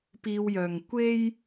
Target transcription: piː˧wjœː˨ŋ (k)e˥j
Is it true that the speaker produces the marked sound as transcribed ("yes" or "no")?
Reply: no